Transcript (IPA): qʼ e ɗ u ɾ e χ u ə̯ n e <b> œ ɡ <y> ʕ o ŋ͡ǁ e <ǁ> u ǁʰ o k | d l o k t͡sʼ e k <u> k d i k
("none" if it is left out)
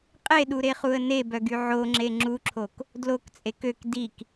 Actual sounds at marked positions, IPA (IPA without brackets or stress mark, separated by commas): b, y, ŋ͡ǁ, ø